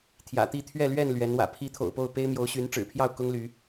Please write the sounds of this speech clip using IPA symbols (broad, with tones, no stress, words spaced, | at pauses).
t̪ʰjä̰˨˩t̪i˥˨t̪ʰɥɛ˥˨lɥɛ˥˨n lɥɛ˨˦nwä̰˨˩ pʰi˨˦ t̪ʰo̰˨˩ʊ̯po˥˨ʊ̯pe˦ɪ̯mjo˨˦ʊ̯ ɕy˨˦n ʈ͡ʂɻ̩˨˩pʰjɑ˥˨ʊ̯ kʊ˦ŋly˨˦